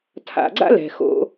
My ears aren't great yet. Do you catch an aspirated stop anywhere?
yes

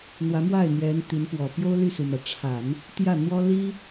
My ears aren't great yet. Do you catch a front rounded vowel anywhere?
yes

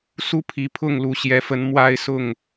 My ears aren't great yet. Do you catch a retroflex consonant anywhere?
no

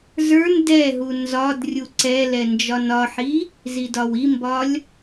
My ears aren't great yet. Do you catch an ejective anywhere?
no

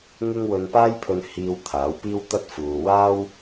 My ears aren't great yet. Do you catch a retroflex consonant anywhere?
no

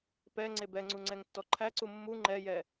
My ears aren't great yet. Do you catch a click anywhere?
yes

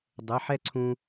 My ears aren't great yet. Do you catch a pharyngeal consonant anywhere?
yes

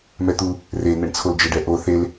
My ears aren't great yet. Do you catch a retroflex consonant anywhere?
yes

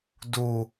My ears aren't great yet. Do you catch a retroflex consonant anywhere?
no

